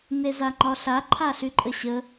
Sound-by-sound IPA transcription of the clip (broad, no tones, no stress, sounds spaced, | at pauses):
n e z a ŋ͡ǃ ɒ ɬ a ǃʰ a ɬ y ǃʼ ə ɕ ə